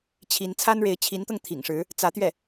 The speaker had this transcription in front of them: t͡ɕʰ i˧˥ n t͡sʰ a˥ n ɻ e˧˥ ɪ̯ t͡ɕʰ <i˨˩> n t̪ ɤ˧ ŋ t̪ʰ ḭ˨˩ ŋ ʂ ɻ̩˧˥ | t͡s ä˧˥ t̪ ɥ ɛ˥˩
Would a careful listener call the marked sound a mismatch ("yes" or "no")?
yes